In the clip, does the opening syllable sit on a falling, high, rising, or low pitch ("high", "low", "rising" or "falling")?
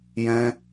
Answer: high